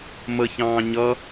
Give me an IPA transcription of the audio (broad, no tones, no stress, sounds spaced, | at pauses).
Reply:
m ə ç ɑ̃ː ɲ ʌ